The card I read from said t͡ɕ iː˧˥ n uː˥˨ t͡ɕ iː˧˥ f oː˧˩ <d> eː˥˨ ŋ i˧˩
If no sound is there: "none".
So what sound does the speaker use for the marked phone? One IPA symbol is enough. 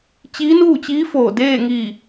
d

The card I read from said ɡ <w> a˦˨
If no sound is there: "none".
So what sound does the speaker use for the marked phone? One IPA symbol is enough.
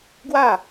w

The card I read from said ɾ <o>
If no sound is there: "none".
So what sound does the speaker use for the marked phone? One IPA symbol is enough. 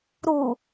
u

